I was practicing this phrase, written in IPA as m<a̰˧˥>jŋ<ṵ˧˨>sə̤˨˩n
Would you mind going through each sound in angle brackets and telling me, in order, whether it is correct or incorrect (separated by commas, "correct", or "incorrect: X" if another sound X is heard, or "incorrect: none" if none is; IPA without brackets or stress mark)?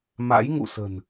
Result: correct, correct